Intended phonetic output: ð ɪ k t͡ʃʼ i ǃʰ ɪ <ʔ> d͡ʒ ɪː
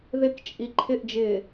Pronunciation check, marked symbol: correct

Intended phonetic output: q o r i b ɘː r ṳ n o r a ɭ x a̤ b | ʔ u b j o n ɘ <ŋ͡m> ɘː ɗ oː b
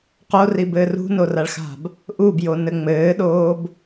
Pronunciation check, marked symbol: correct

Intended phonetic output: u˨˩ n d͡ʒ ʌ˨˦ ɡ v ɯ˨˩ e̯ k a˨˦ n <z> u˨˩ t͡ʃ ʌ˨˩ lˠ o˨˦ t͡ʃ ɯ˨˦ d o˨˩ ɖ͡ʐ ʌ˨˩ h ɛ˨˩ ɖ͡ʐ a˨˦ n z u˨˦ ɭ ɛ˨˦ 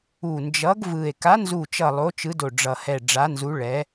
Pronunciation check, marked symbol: correct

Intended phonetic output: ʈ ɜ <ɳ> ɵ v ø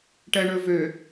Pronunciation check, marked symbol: correct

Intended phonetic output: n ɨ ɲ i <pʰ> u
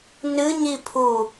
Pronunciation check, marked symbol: correct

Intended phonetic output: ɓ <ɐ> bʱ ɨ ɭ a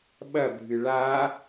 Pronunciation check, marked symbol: correct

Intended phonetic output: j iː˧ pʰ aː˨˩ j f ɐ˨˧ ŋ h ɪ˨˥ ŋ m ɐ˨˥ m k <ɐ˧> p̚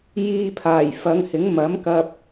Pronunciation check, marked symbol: correct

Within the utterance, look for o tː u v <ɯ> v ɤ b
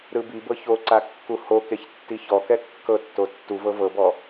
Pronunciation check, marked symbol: incorrect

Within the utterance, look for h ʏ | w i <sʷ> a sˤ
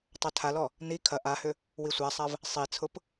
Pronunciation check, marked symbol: correct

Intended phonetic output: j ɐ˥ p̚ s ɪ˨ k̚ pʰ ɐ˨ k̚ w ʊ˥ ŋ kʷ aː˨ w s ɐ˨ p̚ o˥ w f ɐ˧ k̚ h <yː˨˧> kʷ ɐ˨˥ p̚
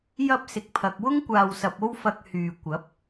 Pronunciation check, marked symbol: incorrect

